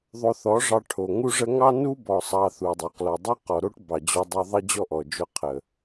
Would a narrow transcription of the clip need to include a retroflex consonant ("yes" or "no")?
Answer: yes